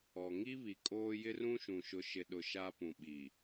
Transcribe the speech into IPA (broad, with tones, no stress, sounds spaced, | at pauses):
ɔ˨ ŋ i˦ β i˨ kʼ oː˦ j ɪ˦ r ũ˦ ʃ ũ˨ ʃ ʊ˨ ʃ ɪ˨ ɗ ʊ˨ ʃ a˦ p ũ˨ ɓ i˨